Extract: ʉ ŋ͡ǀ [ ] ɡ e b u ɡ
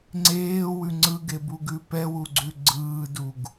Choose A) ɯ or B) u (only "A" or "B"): A